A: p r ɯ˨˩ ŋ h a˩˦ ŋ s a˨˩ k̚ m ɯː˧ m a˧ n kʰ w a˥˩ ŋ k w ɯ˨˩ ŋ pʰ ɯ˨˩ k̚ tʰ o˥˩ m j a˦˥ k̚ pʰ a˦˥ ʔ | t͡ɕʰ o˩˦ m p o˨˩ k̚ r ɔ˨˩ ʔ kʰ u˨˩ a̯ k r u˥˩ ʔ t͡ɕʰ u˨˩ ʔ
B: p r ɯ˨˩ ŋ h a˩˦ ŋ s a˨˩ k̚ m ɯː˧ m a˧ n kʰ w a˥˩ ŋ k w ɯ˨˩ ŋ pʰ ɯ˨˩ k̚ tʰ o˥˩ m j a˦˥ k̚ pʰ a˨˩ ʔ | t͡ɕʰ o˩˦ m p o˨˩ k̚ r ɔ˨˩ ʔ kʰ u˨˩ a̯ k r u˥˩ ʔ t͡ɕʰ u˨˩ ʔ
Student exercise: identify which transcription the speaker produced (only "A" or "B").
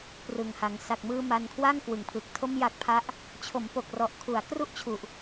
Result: A